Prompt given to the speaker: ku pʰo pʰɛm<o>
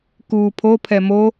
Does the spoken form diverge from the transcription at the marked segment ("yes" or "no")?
no